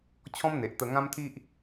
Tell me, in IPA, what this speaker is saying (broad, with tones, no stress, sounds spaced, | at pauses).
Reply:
t͡ɕʰ ɔ̃˦ m n̪ e˨ ʔ t̪ ə˧ ŋ ã˦ m t̪ʰ i˦ ʔ